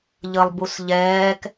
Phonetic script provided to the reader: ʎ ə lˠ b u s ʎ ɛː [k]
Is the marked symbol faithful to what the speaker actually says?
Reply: yes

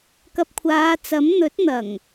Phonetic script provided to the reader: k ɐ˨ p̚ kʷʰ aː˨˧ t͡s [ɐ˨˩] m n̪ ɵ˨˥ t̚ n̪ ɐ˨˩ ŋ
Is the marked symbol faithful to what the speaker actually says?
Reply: no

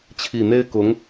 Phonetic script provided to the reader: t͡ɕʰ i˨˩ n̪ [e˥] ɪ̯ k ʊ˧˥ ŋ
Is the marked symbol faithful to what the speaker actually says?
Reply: yes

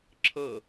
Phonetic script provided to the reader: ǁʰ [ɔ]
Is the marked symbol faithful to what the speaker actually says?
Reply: no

